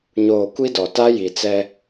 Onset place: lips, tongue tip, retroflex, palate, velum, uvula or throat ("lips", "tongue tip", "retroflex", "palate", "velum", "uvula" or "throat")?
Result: palate